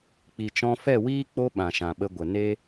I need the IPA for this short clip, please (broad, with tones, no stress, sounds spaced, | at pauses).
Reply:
k͡p i˨ t͡ʃ ɔ̃˧ f ɛ˦˨ w iː˦ k͡p o˦ ɓ ã˨ ʃ ã˨ ɓ ə˧ ɡʷ ə˨ n e˦